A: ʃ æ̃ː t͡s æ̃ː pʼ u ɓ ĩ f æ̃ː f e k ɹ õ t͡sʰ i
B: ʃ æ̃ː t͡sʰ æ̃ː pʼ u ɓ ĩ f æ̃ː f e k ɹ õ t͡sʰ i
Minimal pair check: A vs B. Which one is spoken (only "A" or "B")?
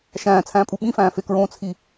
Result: B